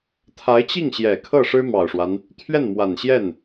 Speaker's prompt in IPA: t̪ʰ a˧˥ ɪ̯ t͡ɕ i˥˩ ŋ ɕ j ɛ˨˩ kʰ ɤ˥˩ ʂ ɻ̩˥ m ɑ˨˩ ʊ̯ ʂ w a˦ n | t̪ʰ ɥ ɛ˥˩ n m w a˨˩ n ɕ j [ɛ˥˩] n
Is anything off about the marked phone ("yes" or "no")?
no